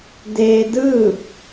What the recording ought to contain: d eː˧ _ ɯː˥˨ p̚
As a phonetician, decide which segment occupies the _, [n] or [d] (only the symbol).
d